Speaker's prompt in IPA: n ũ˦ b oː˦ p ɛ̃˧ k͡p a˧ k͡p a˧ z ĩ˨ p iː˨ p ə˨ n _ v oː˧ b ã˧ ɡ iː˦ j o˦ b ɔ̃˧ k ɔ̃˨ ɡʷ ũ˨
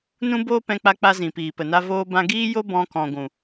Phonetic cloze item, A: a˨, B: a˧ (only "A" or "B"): B